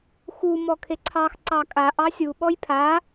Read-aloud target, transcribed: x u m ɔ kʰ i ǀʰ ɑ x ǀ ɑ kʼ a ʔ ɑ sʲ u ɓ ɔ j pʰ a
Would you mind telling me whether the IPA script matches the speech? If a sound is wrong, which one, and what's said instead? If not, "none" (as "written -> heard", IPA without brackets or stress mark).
i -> e